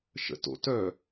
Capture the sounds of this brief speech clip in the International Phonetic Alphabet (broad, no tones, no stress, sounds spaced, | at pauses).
ʃ ə̰ t o̰ t œ